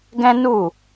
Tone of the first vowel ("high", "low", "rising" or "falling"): high